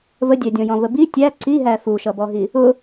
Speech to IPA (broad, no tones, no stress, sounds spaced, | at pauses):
v ə dʲ æ dʲ ɔ̃ j ɔ̃ v ə b i tʲ æ ǀ i ɦ æ f u ʃ ʌ b ɔ ɦ i | ʊ